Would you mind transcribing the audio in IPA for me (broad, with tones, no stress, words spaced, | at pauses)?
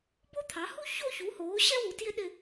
bo˥t̪ʰɑ˩˥hu˥ ço˥˧çu˩˥hoː˩˥ ɕɛ˥wu˩˥ tjɪ˥ɗɪ˥˧